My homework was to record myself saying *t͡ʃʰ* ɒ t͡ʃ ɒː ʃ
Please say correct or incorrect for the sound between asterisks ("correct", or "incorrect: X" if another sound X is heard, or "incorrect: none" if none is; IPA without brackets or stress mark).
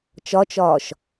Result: incorrect: t͡ʃ